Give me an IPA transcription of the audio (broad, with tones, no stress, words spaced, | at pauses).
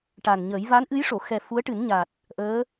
ʈa˨˩nɲəː˨˩˦j va˧˥nʔɨ˧˥jʂo˨˩˨xɛ˨˩ fu˧˥ə̯ʈɨ˨˩˦nɲa˨˩t̚ | ʔəː˧˥